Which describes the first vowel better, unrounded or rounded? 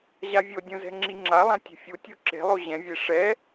unrounded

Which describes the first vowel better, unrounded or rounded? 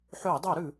rounded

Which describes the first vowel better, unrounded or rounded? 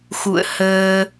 rounded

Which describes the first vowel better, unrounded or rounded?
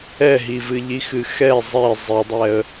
unrounded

